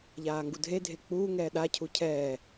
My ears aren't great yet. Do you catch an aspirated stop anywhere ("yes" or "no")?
yes